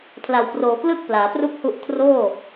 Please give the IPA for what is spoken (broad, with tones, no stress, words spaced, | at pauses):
pʰla˨˩wproː˨˩klɯ˥˩k̚ plaː˩˦pru˥˩k̚ hu˥˩ʔ kʰroː˥˩